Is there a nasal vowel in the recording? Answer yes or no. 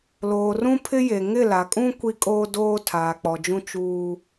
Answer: yes